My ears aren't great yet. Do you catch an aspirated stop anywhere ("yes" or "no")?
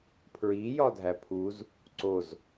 yes